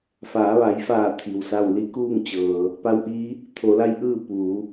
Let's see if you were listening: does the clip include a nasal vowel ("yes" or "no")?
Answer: no